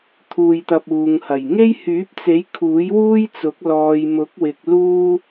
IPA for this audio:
t̪ʰ uː˧ j t̪ ɐ˧ p̚ uː˨ ŋ h ɐ˨˩ j ŋ e˥ j h yː˨˥ p̚ t͡s e˨˥ j kʰ uː˨˥ j w uː˥ j t͡s ʊ˨˥ k̚ l ɔː˨ j m ʊ˨˥ k̚ w ɪ˨ k̚ l uː˥

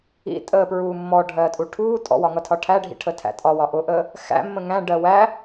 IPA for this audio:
ḭ tʼ əː p ɹ uː mː ɔ ɖʱ ɜː tʼ u ʈʰ uː tʼ ɔ̰ w ɒ ŋ ʌ tʰ ɒ ʈʰ æ ɖʱ ḭ ʈʰ ə tʰ æ̰ tʼ ɒ w ɒ ʔ ʊ ʔ əː | x æ̰ mː ə̃ ŋ æ̃ ɖ ɜ w æ

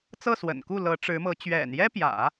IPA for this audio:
t͡s ɤ˥˩ s w ə̰˨˩ n k u˥˩ l ɤ˧˥ ʈ͡ʂ ɻ̩˧˥ m ɤ˧˥ t͡ɕ ɥ ɛ̰˨˩ n j ɛ˥ p j ä̰˨˩˦

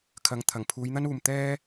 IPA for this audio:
kʰ ɐ˨˧ ŋ t̪ʰ ɐ˨˩ ŋ pʰ uː˨˧ j n̪ ɐ˥ n uː˨ m t̪ ɛː˥

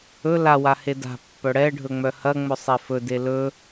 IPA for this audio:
ɵ l a w a h e d a̤ pː œ ɽ ɛ ɖʱ ɵ ŋ͡m œ h ɐ ŋ͡m ɵ sˤ e f ɵ d e l ɵ

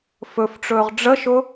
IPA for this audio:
f ɵ f ʈ͡ʂ ɵː ʁ ɖ͡ʐ ə ʃ ʊ

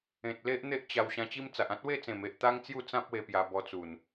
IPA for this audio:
ẽ˨ t̚ l e˦ ʔ n̪ e˦ ʔ t͡ɕ a˧ w ɕ ã˧ t͡ɕ i˦ m t͡s a˨ ʔ ã˦ t̚ w e˥˧ t͡s ẽ˨˩ m e˨ ʔ t̪ a˦ ŋ t͡s j u˥˧ t͡s ã˦ p̚ w e˧ p j a˧ b ɔ˧ t͡s u˨˩ n

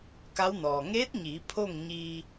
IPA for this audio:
k a˧˥ w n ɔː˩ ŋ eː˧˥ t̚ ɲ iː˩˧ pʰ o˥˨ ŋ ɲ iː˧

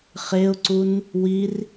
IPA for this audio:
χ e ʊ̯ ǀ u n | w i r

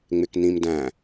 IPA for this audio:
ŋ͡m ɪ k n ĩ m d æ̃

